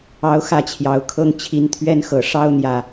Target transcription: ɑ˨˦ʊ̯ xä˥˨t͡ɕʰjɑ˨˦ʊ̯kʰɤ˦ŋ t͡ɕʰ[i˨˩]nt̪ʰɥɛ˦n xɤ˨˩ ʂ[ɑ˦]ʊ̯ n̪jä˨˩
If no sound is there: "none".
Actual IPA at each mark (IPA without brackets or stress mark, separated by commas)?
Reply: i˨˦, ɑ˦